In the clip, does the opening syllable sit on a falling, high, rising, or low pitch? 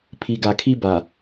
low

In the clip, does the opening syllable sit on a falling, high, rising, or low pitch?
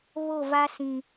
falling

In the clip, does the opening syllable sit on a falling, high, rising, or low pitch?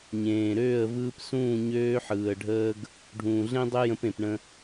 low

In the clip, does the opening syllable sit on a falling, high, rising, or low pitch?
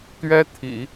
high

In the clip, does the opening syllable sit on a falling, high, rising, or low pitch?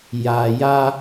low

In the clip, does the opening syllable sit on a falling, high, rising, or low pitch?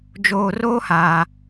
low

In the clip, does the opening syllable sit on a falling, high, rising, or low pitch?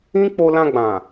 high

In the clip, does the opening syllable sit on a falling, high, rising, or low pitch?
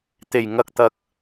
low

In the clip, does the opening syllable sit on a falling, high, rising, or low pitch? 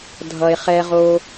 low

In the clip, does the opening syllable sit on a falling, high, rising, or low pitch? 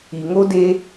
low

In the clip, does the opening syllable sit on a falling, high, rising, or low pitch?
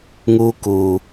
high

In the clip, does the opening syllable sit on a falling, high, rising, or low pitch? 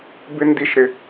high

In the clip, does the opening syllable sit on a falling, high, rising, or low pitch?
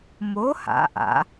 rising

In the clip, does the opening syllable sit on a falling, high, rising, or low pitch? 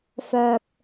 low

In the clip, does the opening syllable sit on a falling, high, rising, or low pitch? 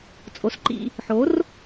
rising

